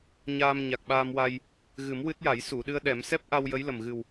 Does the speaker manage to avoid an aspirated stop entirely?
yes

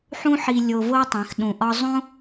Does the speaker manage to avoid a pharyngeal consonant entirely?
no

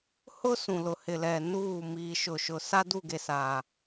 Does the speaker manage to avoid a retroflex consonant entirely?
yes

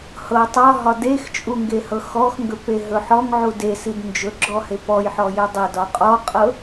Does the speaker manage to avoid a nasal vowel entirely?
yes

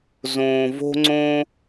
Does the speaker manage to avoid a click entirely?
no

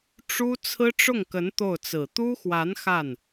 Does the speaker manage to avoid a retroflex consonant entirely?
no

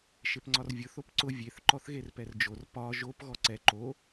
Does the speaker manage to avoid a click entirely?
no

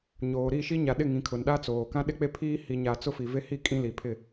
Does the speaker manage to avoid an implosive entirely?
no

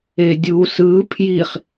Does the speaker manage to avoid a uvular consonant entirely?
no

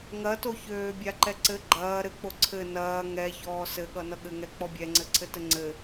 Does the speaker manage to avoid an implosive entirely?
no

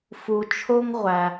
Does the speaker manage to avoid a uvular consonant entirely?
no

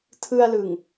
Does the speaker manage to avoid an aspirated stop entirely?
no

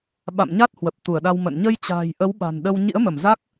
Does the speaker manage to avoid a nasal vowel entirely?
yes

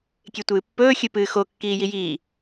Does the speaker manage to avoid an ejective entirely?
yes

